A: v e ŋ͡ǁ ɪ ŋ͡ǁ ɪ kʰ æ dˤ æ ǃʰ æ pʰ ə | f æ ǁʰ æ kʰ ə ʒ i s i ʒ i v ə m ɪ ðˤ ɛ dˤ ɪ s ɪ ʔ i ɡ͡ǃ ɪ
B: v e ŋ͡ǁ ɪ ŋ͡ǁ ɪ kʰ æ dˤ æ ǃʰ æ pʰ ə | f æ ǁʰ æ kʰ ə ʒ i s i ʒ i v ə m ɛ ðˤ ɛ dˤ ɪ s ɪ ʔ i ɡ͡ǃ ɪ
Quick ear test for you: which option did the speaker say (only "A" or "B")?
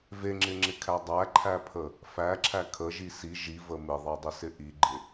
A